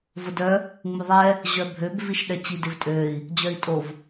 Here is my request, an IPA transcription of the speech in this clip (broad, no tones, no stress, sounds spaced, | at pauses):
v ʊ d œ | ŋ͡m u ðˤ ɛ | ʑ œ bʱ ø b v i ʃ ɗ ɛ t͡ɕ i d ɪ v tʼ ø i̯ | d͡ʑ œ i̯ tʼ o v